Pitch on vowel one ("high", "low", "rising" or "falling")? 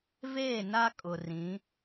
falling